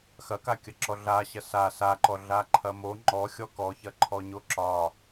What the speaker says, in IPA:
x ɐ k a kʲ ɐ ǁ ɔ ɮ a ɕ ɐ s a s a ǃ ɔ ɮ a ǃʰ ɐ m o ŋ͡ǃ ɔ xʲ ɔ k ɔ ç ɐ ǃʰ ɔ ɲ o ǁ ɒ

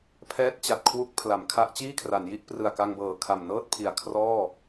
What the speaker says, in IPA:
pʰ ɛː˦˥ t̚ t͡ɕ a˨˩ t̚ kʰ w u˦˥ k̚ pʰ l a˩˦ m kʰ a˦˥ ʔ t͡ɕ iː˥˩ kʰ r a˩˦ n j i˦˥ ʔ p r ɯ˨˩ a̯ k a˧ ŋ b ɤː˨˩ kʰ a˨˩ m n ɤː˥˩ t̚ pʰ i˨˩ a̯ kʰ r ɔː˥˩

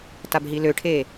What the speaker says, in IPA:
t a b ɦ i l ø ʈʰ e

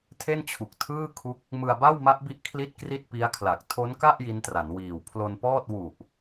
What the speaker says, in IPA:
tʰ e˥˩ n t͡ɕʰ u˨˩ k̚ tʰ ɯː˥˩ kʰ u˦˥ k̚ | m ɯ˧ a̯ b a˥˩ w m a˦˥ ʔ b i˦˥ ʔ kʰ l i˥˩ t̚ k r i˥˩ t̚ p i˦˥ a̯ kʰ l a˨˩ k̚ tʰ o˦˥ n k a˥˩ ʔ j i˦˥ n t r a˩˦ n w iː˨˩ w pʰ l o˧ n p ɔː˥˩ t̚ w u˨˩ ʔ

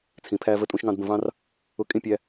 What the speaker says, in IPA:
t͡sʰ ĩ˨ pʰ æ˦ v ə˦ tʼ ũ˦ ʃ ŋ ɑ̃˦ d b ə̃˨ v ɑ̃˦ r | ʊ˦ kʼ ĩ˦ pʲ æ˦

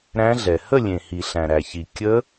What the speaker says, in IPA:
ɾ æ̃˦˥ ɮ ɛ˨ h ə˥˧ lʲ ẽ˨ h i˨ ɬ æ̃˨ ɾ æ˨ ç i˨ kʲ ə˦˥

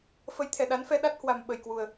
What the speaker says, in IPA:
f ə˨˦ j t̪ʰ ɛ˧˩ ɗ a˨˦ n f ɛ˧ ɗ a˦˥ t̚ h w a˨˩ m ɓ ə˨˩ j k w u˨˩ ə̯

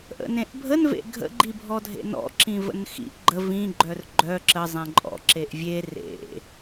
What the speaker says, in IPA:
ʔ ə̰ n ẽ ʔ bʱ ə n v ḛ ɡʱ ə̰ ɡ͡ǃ i bʱ ɔ dʱ ḛ n ɔ̰ ǁ ĩ v ə̰ n x ḭ ʔ ɡ͡ǃ ə v ĩ ɡ͡ǃ œ r ɡ͡ǃ œ ǁ ə zˤ ẽ ǃʼ ɔ̰ ǁ e ʔ vʲ e r ḛ

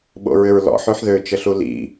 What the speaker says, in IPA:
ɓ o̰ ɹ ʏ ɹ l ɔ̰ ħ ø ħ ð ø t͡ʃ ə ɬ u l ḭ

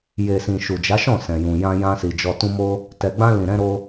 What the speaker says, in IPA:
j e˨ s ĩ˨ ʃ u˨ d͡ʒ a˨˦ ʃ ɔ̃˦˨ s ɛ̃˨ j ũ˨ j ã˧ j ã˧ s i˨ d͡ʒ ɔ˨ t ũ˧ m o˦ | t ɛ˨ ɡ͡b ã˧ l ĩ˨ ɾ ɛ̃˧ ɾ o˧

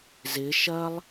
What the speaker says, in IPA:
z ɪ ʃ ɐ lˠ

